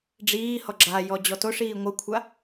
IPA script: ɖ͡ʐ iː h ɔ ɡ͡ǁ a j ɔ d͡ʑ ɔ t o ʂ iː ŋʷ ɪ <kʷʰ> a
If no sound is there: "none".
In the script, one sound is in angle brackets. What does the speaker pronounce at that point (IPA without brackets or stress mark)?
kʷʰ